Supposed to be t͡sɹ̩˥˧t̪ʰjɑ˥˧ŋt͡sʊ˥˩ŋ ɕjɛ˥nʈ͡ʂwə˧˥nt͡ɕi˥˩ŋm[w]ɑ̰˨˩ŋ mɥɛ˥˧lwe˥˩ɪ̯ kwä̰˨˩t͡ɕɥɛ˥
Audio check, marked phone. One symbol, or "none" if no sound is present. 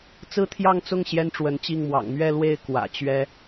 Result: w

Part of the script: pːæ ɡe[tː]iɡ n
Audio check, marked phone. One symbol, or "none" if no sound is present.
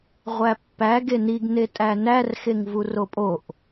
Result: n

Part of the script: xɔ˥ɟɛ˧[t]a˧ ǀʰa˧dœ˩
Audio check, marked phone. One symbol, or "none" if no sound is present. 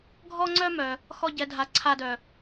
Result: dʱ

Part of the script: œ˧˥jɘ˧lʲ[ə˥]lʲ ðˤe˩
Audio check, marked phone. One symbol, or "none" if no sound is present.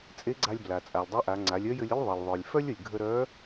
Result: ə˥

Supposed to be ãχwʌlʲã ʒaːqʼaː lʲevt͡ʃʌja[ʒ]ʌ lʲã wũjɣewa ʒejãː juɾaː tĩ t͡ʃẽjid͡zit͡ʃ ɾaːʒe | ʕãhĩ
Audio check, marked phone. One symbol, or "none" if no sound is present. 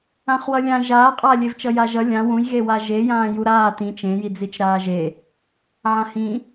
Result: ʒ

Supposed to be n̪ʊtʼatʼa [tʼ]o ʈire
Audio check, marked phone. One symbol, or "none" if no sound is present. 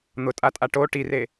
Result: ʈ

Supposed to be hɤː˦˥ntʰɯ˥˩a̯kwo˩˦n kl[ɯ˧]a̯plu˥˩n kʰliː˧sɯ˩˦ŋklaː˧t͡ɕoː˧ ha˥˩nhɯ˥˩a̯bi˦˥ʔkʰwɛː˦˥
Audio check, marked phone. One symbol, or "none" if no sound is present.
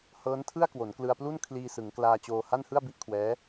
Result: ɯ˧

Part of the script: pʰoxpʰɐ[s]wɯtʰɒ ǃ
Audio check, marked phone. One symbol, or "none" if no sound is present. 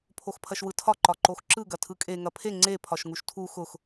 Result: ʃ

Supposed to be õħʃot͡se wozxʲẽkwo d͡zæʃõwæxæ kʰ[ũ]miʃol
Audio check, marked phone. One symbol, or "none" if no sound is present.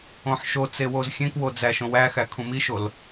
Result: ũ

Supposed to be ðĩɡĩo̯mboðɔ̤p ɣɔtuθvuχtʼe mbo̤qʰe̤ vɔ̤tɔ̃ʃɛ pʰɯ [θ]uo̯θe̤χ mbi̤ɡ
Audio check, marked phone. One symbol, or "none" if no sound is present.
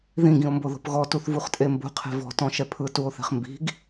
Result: t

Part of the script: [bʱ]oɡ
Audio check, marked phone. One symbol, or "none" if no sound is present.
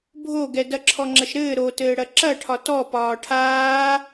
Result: bʱ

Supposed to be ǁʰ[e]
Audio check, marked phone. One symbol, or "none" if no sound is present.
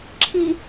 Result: i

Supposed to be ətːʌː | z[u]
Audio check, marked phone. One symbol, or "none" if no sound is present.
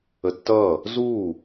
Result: uː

